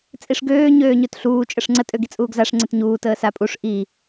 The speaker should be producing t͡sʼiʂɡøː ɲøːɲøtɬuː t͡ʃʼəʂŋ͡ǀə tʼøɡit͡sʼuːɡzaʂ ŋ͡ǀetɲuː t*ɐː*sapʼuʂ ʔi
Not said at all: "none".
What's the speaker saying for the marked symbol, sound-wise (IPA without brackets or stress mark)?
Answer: əː